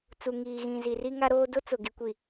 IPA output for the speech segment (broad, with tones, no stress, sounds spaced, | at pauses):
t͡s u˨ ŋ iː˨ ɣ ĩ˨ z i˨ r i˦ ŋ a˦ ɾ oː˦ d ʊ˦ t͡s ʊ˨ ɡ i˨ kʷ i˨